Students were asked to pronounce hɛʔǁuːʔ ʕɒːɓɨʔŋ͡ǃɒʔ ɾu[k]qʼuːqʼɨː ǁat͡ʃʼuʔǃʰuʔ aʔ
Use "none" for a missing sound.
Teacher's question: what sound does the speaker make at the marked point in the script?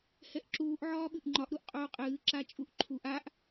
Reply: ʔ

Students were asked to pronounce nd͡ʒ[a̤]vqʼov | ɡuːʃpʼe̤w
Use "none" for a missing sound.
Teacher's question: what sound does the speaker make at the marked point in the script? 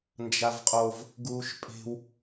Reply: a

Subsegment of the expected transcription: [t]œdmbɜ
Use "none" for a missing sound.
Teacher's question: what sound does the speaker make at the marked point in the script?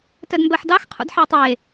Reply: t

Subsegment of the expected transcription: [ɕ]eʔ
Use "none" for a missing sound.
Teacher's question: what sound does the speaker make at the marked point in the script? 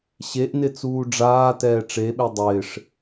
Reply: ɕ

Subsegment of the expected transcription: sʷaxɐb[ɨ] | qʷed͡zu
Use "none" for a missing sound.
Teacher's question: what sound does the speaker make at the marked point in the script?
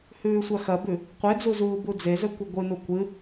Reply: ʉ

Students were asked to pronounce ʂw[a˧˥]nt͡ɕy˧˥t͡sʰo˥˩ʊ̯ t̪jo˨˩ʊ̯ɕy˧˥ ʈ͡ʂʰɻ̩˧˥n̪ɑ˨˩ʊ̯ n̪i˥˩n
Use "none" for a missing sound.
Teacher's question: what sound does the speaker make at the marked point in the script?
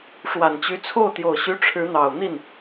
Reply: a˨˩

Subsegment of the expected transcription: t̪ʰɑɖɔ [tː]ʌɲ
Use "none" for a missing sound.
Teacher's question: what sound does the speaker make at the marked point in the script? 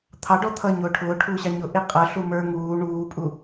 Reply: t̪ʰ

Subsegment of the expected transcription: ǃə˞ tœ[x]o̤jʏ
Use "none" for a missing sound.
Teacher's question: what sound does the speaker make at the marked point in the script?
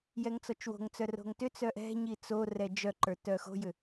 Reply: x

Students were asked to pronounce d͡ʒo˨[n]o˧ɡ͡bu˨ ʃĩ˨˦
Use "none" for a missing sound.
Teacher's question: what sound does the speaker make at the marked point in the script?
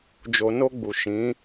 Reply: n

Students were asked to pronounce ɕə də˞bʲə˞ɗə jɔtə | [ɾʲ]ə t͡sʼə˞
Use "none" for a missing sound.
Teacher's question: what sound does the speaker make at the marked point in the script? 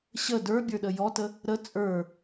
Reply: ɾ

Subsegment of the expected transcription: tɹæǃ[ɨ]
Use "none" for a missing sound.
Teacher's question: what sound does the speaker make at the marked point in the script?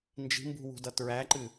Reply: ɨ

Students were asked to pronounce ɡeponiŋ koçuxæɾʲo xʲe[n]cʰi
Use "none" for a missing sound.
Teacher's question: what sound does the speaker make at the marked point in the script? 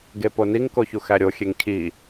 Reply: ŋ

